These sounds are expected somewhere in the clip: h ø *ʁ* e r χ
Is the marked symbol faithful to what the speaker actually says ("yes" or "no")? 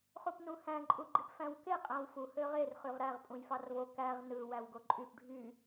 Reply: yes